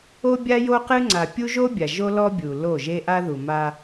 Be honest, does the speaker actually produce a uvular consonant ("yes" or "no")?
yes